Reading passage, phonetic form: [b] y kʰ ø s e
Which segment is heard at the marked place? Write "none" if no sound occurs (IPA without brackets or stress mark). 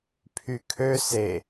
pʰ